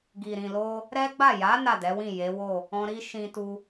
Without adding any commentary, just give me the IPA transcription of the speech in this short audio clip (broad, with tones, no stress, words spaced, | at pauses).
ɡi˨ɾĩ˨lo˧ | ɾɛ˦ɡ͡ba˦˨ ja˨˦ na˦˨dɛ˨˦wĩ˦˨ je˨˦wo˦˨ | ɔ̃˦ ɾi˦ ʃĩ˧tu˧